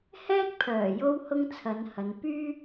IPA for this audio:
h ɛː˥ k̚ pʰ œː˨˩ j o˥ w h ʊ˥ ŋ t͡sʰ ɐ˨˧ n h ɐ˨˧ n p yː˥

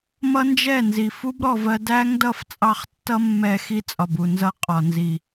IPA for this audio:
m ʌ˦ n d͡ʒ ɛ˦˨ n z i˨ f u˦ b ɾ ɔ˨ v ɜ˧ d æ˦ ŋ d ʌ˧ f t͡sʼ ɑ˦ χ tː ʌ˦ mː ɛ˧ x i˦ t͡sʼ ɒ˨ b u˨ n z ʌ˦ qʼ ɒ˨ n z i˨

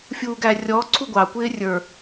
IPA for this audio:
fʲ uː ɡ æ rʲ ɔ ǀʰ u ɡʷ ɑ kʷ ɪː rʲ ə˞

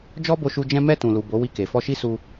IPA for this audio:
d͡ʒ ɔ˦ b o˧ ʃ u˧ d͡ʒ ɛ̃˧ m ɛ˧ t ũ˨ l u˨ b o˨˦ w i˧ k e˨ f ɔ˧ ʃ i˦ s u˧

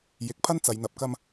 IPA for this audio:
j ɪ˨ k̚ pʰ ɐ˥ n t͡s ɐ˨˧ j n̪ ɐ˨˥ p̚ k ɐ˥ m

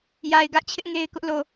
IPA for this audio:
j a˨ ɪ̯ ɡ ä˦ ʔ t͡ɕʰ ɪ˦ ʔ ŋ e˦ ɪ̯ k ʊ˦ ʔ l o˨

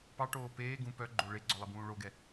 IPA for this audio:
p ɑ ʈ oː p eː ɡ ũ p œ ɡ͡ǃ o ɭ e ɡ͡ǀ ɔ lˠ i b ũː ɭ o ɡ ɛ

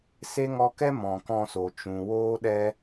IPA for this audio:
s e˦ ŋ ɔ˧ k ɛ˦ m ɔ̃˨ k ɔ̃˧ s o˨ t͡ʃ ũ˨ w oː˦ ɗ ɛ˦

